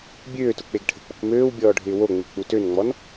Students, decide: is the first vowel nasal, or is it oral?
oral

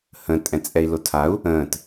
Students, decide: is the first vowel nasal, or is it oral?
nasal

